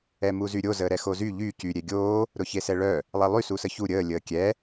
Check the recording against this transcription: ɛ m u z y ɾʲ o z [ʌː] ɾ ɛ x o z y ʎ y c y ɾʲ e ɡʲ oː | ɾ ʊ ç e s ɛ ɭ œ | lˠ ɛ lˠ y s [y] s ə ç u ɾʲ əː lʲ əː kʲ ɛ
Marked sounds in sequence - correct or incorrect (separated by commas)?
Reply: incorrect, incorrect